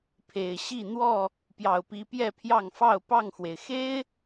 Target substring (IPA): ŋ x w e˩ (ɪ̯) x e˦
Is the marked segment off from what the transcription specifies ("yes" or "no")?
no